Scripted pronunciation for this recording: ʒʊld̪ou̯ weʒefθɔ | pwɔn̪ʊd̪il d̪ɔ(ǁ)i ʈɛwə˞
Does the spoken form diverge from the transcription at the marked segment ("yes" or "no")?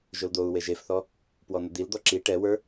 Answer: no